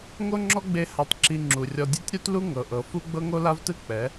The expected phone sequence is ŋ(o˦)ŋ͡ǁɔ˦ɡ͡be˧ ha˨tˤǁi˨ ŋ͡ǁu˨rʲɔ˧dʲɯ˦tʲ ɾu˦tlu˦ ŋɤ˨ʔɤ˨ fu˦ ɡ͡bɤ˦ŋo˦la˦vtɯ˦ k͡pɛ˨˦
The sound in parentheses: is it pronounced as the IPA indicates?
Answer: yes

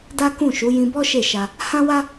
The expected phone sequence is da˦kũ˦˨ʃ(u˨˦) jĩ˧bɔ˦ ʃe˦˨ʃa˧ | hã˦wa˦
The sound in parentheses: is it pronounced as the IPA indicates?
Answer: yes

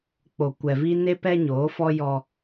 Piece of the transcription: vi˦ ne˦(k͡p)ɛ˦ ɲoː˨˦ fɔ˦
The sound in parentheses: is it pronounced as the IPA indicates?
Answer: no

